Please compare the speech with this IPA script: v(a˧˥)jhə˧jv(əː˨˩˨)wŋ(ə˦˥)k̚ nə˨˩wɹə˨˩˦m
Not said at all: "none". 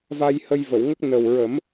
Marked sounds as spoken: a˧, ə˨˩˨, ə˦˥

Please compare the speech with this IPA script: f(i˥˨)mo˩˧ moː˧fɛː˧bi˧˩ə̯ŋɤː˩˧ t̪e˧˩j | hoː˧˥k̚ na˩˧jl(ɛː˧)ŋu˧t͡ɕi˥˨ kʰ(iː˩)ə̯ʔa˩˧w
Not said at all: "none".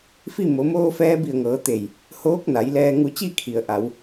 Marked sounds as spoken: i˥˨, ɛː˧, i˩

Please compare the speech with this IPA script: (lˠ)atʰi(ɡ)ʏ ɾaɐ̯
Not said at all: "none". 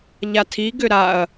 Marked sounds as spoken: ʎ, ɡ

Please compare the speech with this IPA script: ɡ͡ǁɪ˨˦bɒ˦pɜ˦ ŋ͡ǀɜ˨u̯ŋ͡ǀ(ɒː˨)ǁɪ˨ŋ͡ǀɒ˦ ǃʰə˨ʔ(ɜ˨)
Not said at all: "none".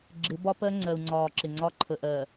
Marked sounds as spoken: ɒː˨, ɜ˨

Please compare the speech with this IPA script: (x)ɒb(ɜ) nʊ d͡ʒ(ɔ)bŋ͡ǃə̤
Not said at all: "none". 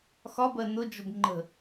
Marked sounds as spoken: x, ɜ, ʊ

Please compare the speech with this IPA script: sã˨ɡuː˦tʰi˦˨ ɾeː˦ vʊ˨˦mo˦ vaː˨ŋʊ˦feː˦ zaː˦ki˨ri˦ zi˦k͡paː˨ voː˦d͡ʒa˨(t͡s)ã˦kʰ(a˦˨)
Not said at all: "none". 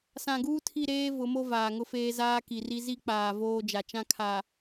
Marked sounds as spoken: t͡ʃ, a˨

